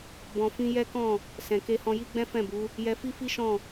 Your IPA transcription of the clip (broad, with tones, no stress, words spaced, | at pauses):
bɔ̃˧fĩ˦ jɛ˦kɔ̃˦˨ | sɛ̃˨ke˧hɔ̃˧ji˦ ɡ͡bɛ̃˦fɛ̃˦˨bu˨˦ | jɛ˧fi˦fi˦ʃɔ̃˦˨